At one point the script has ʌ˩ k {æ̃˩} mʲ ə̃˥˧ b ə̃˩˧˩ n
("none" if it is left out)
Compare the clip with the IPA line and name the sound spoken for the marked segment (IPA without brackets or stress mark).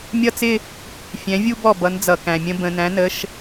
æ̃˩